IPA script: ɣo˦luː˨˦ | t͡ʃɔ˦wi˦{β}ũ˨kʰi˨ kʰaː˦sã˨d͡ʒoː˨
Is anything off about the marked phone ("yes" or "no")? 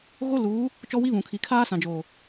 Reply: no